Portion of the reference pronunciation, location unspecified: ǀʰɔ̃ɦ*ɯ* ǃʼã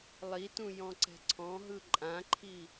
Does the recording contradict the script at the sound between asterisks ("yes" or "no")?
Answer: no